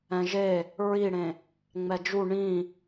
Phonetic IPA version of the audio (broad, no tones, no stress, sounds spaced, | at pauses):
ɛ̃ ʒ e | ɹ i ɽ ẽ | ŋ͡m ɛ d͡ʒ u ɳ ĩ